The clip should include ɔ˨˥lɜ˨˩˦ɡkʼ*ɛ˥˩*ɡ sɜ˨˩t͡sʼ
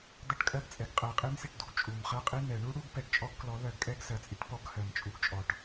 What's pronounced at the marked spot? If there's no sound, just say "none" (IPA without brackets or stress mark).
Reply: ɛ˦˥